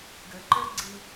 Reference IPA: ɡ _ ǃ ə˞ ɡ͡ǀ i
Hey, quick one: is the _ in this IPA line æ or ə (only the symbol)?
ə